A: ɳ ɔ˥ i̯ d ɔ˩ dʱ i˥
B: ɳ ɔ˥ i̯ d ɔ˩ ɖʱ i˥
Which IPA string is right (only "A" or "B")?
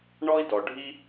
B